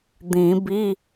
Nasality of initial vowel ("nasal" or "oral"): nasal